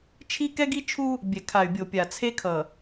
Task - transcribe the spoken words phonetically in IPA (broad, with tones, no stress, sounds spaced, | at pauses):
t͡ʃʰ i˦ k ɛ˦ ɡ i˦ t͡ʃʰ u˦ | bʲ ɛ˨ kʰ a˨ y̯ bʲ o˨ pʲ a˨ t͡sʰ e˦ kʰ ʌ˨